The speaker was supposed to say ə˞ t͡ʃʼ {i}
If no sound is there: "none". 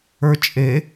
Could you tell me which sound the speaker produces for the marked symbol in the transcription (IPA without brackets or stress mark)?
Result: e